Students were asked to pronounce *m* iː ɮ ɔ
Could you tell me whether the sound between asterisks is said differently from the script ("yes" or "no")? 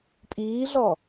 yes